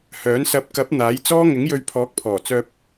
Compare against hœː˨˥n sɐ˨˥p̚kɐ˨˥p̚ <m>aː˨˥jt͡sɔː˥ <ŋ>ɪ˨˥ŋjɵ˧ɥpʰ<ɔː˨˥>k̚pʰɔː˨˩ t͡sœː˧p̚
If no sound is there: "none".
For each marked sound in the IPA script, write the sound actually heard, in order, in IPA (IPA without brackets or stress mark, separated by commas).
n̪, ŋ, ɔː˨˥